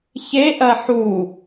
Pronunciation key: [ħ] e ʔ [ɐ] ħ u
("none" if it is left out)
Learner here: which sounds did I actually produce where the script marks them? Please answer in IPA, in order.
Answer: ç, ɐ

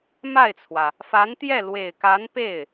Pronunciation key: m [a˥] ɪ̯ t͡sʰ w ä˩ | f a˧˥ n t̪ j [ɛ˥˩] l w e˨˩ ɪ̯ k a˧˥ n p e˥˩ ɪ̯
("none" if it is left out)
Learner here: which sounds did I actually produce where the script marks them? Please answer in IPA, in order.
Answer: a˥˩, ɛ˥˩

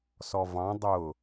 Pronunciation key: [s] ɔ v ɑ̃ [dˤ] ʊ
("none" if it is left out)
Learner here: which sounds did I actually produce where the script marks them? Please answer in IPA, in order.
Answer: s, dˤ

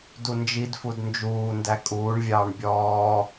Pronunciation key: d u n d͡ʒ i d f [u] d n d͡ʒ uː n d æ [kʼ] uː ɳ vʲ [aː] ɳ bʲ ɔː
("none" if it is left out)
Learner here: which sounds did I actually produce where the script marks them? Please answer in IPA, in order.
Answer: u, kʼ, ɑː

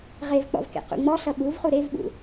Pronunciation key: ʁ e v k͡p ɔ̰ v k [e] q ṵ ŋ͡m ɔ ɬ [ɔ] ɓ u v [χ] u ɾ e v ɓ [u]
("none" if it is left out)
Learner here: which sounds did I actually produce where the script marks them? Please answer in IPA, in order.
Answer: ḛ, ʌ, χ, ṵ

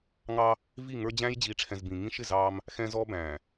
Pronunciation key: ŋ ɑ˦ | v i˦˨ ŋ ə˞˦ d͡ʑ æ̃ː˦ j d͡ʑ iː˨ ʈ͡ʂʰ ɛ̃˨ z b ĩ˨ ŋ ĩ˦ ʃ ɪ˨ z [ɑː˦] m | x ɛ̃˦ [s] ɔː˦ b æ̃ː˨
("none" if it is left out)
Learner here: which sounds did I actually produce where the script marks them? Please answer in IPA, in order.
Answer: ɑː˦, z

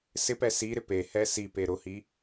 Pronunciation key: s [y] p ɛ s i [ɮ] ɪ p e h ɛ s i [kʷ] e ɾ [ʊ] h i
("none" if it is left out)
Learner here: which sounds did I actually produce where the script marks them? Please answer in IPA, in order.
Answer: ɪ, ɾ, p, ʊ

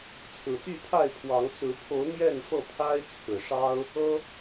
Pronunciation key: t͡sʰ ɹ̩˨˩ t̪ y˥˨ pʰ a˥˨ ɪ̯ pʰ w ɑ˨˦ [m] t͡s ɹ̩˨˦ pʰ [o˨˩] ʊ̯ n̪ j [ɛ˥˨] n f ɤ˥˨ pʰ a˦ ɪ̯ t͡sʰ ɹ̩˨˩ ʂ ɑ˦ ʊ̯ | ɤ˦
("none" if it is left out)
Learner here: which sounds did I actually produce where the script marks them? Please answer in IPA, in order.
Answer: ŋ, o˨˦, ɛ˥˨

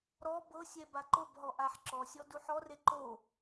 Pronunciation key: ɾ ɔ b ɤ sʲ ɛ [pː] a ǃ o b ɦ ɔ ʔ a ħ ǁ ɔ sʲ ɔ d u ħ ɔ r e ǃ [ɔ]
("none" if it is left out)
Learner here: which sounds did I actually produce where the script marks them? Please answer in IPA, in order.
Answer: b, o

